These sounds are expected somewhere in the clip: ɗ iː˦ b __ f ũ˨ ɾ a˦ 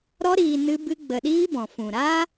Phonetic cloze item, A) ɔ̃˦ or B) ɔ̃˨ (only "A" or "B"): B